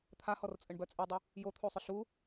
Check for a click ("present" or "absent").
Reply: absent